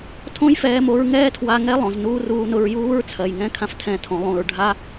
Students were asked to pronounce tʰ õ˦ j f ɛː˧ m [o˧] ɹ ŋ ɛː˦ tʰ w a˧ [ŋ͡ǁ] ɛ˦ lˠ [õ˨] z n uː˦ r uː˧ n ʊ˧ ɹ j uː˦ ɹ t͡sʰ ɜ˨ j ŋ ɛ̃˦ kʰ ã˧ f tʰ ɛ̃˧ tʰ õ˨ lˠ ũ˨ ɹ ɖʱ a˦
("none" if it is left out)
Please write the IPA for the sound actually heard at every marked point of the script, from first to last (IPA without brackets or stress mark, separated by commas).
o˧, ŋ, õ˨